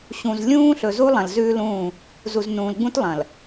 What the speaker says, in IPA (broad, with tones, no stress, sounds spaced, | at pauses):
ɕ ũ˨ z lʲ ũː˦ ɬ ɵ˨ z u˦ lˠ ɐ̃˨ l z ʉː˦ l ũː˦˨ | z u˨ z n ũː˨ l ɡ͡b ũ˦ t lˠ ɐ̃˨ l